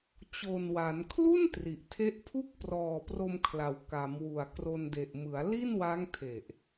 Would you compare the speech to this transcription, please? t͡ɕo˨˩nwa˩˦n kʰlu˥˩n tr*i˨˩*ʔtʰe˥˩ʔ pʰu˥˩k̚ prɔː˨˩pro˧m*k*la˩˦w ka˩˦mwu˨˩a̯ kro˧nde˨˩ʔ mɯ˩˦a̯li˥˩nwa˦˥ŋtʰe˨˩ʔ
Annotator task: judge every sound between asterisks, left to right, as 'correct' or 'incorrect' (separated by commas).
correct, incorrect